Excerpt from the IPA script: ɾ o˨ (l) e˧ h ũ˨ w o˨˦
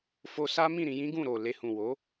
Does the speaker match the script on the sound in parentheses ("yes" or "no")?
yes